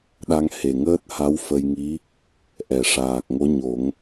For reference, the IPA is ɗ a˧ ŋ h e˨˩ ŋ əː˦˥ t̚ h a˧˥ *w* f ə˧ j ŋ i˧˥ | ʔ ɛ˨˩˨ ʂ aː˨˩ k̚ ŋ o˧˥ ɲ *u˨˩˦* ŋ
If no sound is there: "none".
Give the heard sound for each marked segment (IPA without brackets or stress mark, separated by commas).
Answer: w, o˨˩˦